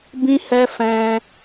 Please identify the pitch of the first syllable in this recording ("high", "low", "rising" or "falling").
high